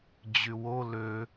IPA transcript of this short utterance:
d͡ʑywo lø

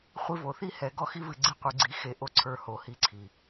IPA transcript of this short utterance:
χʷi˧vo˨θi˦hɛ˨˦ ɡɔ˧xi˧vɨ˨ ɡ͡ǀɨ˧qʷɨ˨ɡ͡ǀi˨˦ xe˨ʔo˧ ǀʰə˞˧ho˨˦hi˧ǀʰi˨

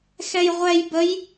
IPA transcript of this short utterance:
xɛjʁʷɛj bəj

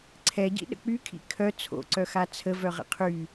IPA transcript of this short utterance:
ǀʰɛɟḭ ɗə̰k͡pykʰḭ kʰœ t͡sʰo̰ǀœxa t͡sʰəvœʁə̰ qʰy

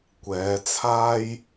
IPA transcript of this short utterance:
kʷɛː˨˧t͡sʰaː˥j

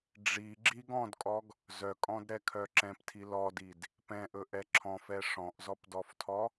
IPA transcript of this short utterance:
ɖ͡ʐi ɡ͡ǁiɡ ɔ̃dkʼɔɡ | zœkʼɔ̃dɾɛkʰœ ǁɛ̃ptʰi lɔdid | pɛ̃ʔɵʔɛ ǁʰɔ̃fɛ ʂɔ̃ʔzɔpdɔftʰɔ

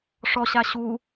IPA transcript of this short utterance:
ʂɔɕa ɕu

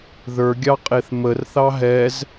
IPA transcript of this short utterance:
ðə˞ɡʲɑqʼeθ mərθɑ ɦɛz

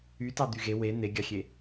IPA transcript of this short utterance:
ytɑ d̪yɣe we n̪eɡʲɑxʲe

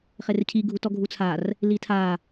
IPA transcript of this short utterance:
χercʰi ɡʱutɔɡʱut͡sʰar | litʰa

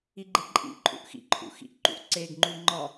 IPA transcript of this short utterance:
iɡ͡ǃeǃʼḭǃʼṵʔ xḭǃʰṵ xḭʔǃṵʔǀeɡŋ͡ǃu ŋ͡ǃɒ

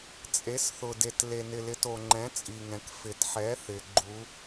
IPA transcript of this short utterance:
t͡sʼe˨˥sθʊ˨ de˨tle˨nɪ˨ lɪ˨˥to˨ŋ͡ǃɛ̃˨˥ t͡sʼi˨ŋɛ̃˨k fɪ˨tħɛ˨˥ θɪ˨ ɡ͡ǃu˨˥

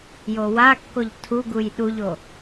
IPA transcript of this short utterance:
jowakːoʎ tʰuɡuj ɗuʎo

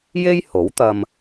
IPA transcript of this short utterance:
je˥jho˨˥wt̪ɐ˧m

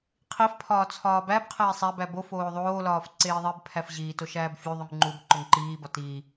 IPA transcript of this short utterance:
qʰifpʰɒː t͡sʰɒːbæbqʰeːsˤ æbæ bofoː ðˤoːlɒːf ǀeːðˤebpʰæf ʑiː toʃæːbfʲuðˤuŋ ŋ͡ǃub ǃoŋǃiːbɒ tiː

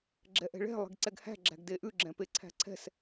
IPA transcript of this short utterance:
ɡ͡ǁɛʔɛ̤ɭɛ̤ lˠe̤ɡǀɛɡhæ̤ ɡ͡ǁæ̤ɡdeʔʉ ɡ͡ǁɛ̃peǀʰæ̤ǀʰɛ̤s

